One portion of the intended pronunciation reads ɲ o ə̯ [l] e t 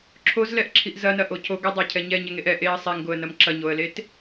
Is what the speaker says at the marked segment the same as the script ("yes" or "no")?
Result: yes